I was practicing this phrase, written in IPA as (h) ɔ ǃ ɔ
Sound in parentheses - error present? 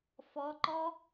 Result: yes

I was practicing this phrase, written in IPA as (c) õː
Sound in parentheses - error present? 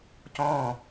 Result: no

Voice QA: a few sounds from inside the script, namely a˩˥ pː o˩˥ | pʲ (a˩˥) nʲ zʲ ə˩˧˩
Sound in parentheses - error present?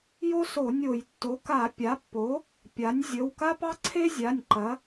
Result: no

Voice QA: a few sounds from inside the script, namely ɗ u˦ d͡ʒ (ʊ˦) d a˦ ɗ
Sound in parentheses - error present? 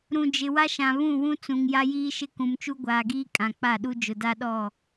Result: yes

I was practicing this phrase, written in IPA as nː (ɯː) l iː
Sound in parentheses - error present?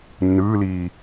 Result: no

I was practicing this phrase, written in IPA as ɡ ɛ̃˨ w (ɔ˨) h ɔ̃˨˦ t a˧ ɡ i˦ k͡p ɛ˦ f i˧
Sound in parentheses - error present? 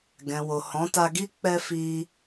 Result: yes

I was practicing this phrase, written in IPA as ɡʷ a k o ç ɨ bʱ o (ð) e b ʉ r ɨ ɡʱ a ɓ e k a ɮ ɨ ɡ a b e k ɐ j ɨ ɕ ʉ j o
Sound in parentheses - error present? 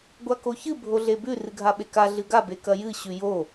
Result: yes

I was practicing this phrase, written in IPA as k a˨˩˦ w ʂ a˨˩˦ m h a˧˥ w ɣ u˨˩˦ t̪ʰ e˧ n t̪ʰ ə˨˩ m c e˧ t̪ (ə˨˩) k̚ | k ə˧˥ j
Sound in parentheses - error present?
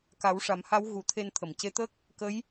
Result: yes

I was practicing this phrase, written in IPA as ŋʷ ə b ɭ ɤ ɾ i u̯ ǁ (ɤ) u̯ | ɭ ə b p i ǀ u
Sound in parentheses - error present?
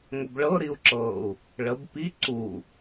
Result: no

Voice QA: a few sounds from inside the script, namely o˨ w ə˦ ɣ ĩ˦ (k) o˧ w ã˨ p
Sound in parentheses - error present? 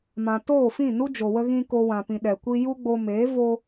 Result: no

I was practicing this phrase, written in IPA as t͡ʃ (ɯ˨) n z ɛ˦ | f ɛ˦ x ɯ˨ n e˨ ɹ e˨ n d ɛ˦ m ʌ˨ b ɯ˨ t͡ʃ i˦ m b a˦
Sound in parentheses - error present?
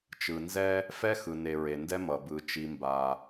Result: no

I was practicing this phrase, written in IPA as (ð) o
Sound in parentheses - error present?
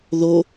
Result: no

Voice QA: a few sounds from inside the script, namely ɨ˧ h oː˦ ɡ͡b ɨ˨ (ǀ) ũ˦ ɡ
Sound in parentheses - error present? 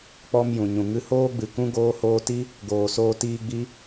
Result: yes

